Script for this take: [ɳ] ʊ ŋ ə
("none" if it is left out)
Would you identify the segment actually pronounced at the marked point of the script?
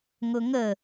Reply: ŋ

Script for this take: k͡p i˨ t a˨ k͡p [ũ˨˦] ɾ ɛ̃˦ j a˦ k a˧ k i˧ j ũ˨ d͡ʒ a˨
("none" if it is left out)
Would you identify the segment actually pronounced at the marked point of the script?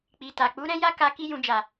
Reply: u˨˦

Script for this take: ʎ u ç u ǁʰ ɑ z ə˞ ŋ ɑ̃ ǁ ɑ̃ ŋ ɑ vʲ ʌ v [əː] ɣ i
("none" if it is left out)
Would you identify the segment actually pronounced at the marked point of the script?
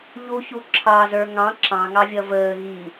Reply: əː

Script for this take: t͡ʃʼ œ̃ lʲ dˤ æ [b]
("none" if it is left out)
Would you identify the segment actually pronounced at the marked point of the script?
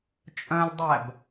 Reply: b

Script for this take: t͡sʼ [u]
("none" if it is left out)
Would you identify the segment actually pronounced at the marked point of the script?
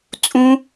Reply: ũ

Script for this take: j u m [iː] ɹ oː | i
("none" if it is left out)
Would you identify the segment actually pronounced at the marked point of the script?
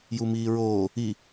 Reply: iː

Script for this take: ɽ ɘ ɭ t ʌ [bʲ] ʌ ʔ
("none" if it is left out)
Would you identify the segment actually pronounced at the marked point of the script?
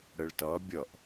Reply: bʲ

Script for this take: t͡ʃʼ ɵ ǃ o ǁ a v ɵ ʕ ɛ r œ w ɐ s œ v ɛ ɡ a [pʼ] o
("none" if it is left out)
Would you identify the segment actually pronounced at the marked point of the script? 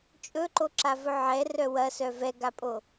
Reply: pʼ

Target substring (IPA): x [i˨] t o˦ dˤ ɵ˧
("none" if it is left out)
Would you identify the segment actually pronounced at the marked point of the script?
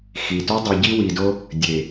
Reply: i˨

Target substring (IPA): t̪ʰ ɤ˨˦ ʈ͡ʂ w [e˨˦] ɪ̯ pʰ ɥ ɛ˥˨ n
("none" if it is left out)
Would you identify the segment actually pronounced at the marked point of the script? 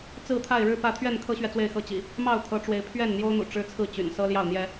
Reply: e˨˦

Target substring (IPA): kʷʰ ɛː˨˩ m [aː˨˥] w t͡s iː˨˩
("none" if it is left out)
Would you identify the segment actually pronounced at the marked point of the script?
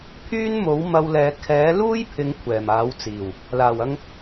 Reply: aː˨˥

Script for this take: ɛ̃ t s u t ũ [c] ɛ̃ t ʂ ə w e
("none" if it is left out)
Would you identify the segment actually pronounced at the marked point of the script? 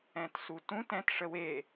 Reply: t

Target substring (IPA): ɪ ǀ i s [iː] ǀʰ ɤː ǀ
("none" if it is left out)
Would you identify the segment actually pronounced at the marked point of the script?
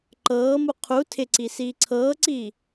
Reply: iː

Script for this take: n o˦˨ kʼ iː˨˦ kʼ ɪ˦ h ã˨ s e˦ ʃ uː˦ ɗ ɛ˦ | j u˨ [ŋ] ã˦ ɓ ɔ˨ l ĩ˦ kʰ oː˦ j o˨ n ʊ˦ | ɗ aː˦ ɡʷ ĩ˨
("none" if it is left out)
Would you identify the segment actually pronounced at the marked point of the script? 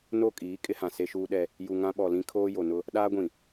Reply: ŋ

